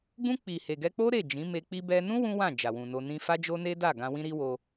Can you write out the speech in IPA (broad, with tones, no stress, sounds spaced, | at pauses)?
ɡ ũ˧ k͡p i˨ h e˨ ɡ ɛ˧ k͡p o˦ ɾ e˦˨ d͡ʒ ĩ˨˦ m e˧ k͡p i˧ b ɛ˧ n ũ˦ w ũ˦ w ã˦˨ d͡ʒ a˨ w ũ˨ n o˧ n ĩ˧ f a˦ d͡ʒ o˦ n e˦ d a˦˨ ɡ ã˧ w ĩ˦ ɾ i˦ w o˧